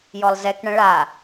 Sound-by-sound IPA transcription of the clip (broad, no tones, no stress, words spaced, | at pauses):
jɔlˠzɛkɳə̃ ɭa